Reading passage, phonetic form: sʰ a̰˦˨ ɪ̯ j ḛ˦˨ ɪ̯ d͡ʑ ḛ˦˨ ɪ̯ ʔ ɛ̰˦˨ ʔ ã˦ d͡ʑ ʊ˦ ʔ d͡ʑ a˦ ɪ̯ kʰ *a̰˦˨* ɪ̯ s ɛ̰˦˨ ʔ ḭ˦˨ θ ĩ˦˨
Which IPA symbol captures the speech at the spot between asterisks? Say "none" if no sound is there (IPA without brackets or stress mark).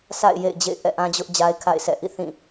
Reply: a̰˦˨